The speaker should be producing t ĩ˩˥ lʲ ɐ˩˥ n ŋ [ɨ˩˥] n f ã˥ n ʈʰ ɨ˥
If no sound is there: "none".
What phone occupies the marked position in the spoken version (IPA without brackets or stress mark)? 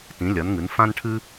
ɨ˩˥